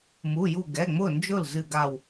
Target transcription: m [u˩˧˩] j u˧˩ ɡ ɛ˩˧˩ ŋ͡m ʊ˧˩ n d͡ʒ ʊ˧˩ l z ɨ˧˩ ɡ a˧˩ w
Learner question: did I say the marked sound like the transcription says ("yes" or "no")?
yes